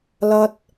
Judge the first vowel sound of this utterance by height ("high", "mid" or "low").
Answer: low